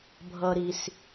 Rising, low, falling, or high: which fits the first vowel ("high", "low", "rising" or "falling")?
high